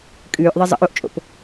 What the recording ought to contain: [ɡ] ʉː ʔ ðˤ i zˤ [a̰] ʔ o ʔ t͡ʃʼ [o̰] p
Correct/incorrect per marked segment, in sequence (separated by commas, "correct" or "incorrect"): incorrect, incorrect, correct